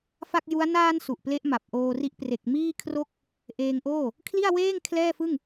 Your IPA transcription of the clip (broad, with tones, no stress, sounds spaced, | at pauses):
f a˥˩ k̚ j u˦˥ a̯ n aː˧ n s u˨˩ ʔ p l e˦˥ ʔ m a˨˩ p̚ ʔ oː˧ r i˦˥ ʔ p r e˨˩ k̚ m iː˥˩ kʰ r o˥˩ k̚ | ʔ eː˧ ŋ ʔ oː˥˩ | kʰ l i˥˩ a̯ w eː˥˩ ŋ kʰ l ɛː˥˩ f ɯ˥˩ ŋ